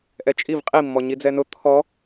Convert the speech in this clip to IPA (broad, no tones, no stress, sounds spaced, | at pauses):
ʔ ɛ t͡ʃʼ i v qʼ i mː ɔ ɲ i d͡z ɛ n ʊ t̪ʰ ɔ